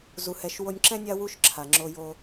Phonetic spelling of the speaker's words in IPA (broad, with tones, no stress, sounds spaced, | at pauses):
z u˧ h ɛ˧ ʃ w o˧ nʲ ǁ ɛ̃˦ nʲ a˦ w u˦ ʃ ǁʰ a˨ ŋ͡ǁ o˧ j o˧